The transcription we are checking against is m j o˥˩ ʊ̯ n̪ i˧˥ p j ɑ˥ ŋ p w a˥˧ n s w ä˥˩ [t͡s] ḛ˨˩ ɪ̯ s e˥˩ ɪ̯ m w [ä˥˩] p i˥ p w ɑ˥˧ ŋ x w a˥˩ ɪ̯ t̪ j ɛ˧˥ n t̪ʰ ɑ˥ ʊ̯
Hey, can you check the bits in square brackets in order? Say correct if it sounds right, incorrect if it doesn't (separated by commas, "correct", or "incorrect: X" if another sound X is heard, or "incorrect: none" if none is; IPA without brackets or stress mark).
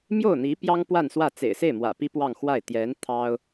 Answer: correct, incorrect: ä̰˨˩